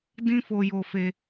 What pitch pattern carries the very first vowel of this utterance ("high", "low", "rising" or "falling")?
high